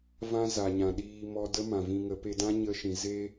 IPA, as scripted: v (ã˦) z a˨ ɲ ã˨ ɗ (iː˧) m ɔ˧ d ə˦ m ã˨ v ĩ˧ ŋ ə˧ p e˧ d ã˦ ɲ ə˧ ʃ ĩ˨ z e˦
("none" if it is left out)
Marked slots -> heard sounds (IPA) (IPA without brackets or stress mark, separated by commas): ã˦, iː˧